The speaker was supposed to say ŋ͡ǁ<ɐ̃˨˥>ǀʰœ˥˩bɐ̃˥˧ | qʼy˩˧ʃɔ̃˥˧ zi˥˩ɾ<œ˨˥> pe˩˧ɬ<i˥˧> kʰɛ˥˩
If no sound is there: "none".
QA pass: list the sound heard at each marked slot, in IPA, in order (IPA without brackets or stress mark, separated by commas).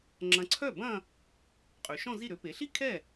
ɐ̃˨˥, ø˨˥, i˥˧